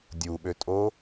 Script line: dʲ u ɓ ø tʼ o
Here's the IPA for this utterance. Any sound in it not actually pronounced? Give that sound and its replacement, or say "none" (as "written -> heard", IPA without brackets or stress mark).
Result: none